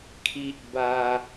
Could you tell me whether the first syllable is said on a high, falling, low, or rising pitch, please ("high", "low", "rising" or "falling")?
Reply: high